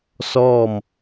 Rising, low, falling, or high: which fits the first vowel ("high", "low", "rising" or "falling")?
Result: falling